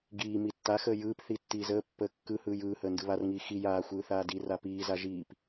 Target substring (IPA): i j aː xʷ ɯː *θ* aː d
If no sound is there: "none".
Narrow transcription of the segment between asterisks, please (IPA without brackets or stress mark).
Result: θ